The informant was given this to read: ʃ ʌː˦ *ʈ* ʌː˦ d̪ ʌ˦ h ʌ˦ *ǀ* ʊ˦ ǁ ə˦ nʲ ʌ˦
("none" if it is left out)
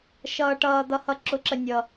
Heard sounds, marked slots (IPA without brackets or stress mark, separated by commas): ʈ, ǁ